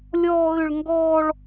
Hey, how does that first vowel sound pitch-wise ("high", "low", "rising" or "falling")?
high